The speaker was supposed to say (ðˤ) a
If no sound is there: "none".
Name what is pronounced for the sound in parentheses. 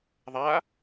ðˤ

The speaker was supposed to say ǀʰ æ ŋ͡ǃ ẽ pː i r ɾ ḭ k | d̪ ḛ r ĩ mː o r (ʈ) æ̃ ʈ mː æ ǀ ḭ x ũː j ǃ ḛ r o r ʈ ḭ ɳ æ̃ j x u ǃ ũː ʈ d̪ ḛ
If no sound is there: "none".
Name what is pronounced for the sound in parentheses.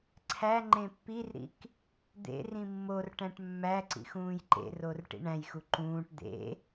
ʈ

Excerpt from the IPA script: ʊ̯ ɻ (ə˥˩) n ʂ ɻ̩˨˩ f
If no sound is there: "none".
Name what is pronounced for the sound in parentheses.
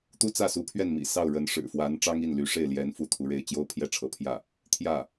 ə˧˥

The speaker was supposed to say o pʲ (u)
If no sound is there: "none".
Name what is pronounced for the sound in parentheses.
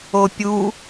u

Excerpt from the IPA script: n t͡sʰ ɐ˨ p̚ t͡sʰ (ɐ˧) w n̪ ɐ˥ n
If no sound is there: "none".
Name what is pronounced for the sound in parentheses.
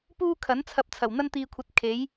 ɐ˨˩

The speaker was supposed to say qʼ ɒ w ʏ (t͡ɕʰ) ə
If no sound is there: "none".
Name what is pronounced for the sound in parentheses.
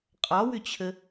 t͡ɕʰ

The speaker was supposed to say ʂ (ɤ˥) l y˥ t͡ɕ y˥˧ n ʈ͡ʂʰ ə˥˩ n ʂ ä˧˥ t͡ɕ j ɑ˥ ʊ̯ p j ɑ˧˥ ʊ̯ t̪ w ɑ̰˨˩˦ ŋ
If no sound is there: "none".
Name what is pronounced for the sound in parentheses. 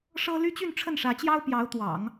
ɤ˥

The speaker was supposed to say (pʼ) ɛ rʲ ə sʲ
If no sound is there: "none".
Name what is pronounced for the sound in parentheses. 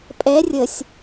pʼ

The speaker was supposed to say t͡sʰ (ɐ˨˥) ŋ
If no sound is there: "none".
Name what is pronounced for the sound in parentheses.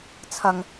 ɐ˨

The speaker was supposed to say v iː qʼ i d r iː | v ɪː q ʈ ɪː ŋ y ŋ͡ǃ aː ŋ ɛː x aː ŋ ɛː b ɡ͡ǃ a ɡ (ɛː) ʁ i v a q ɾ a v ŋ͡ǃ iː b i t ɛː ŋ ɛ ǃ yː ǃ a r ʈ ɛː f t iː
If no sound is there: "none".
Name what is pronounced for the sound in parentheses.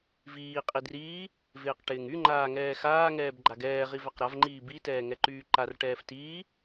ɛː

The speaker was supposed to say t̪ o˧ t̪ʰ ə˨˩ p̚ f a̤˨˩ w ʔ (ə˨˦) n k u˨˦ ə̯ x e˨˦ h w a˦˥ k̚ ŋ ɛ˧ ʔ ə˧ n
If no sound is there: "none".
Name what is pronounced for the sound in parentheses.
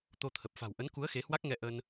ə˨˦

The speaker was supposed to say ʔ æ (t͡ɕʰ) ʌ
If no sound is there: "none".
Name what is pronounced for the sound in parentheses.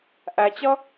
t͡ɕ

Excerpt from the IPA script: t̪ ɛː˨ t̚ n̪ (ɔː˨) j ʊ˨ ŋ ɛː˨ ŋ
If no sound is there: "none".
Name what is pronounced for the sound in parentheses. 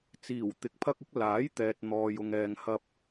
ɔː˨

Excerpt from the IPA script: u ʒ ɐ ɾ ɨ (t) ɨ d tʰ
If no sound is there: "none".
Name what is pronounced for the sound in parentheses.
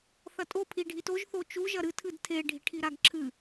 tʰ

